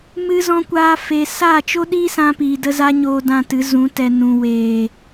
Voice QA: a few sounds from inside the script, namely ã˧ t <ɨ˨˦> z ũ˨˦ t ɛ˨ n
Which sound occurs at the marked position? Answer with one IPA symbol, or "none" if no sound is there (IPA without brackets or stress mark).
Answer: ɨ˨˦